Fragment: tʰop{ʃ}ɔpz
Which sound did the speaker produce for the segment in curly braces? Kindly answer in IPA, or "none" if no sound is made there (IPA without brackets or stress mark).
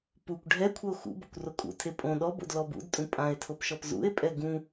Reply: ʃ